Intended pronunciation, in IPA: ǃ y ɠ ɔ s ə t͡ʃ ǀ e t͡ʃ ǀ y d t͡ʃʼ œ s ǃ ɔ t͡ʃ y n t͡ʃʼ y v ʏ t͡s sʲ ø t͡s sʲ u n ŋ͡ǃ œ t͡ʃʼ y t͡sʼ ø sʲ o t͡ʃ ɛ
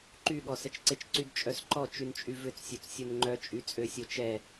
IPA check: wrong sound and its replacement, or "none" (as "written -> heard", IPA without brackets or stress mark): none